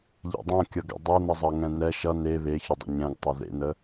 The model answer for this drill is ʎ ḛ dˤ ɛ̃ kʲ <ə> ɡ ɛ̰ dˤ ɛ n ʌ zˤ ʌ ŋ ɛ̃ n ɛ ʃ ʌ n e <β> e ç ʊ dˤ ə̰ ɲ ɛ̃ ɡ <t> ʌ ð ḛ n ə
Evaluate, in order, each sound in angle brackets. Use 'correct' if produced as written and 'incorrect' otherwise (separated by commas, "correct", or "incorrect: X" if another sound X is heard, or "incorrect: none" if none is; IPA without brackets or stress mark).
incorrect: ʌ, correct, incorrect: tˤ